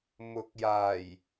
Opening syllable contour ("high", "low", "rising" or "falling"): rising